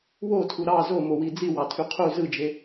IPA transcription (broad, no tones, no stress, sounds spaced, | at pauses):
w o tʰ u ɾ ɑ z o m o w i d͡z i w ɑ tʰ y qʰ u z ɯ d͡ʒ e